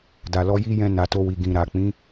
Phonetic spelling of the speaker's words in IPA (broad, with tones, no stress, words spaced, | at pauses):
da˨lɔ˧ji˦jɛ̃˧ na˨to˧wi˨ ɡĩ˨ɾa˨ k͡pĩ˨˦